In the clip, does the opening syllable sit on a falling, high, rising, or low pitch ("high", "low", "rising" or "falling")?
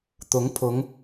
rising